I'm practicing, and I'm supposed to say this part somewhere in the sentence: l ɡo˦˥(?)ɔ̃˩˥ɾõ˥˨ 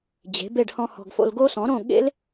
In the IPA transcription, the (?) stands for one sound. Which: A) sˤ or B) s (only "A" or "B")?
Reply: B